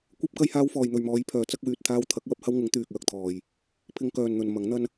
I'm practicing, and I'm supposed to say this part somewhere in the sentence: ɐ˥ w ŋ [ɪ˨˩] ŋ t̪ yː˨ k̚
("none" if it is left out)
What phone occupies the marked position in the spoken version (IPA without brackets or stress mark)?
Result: ɪ˨˥